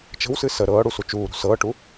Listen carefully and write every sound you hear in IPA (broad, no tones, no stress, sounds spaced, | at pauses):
t͡ʃ ə̤ w s ɨ s ə ɾ ɤː ɽ u s u t͡ʃ uː ɾ ṳ s ɤː ʈ u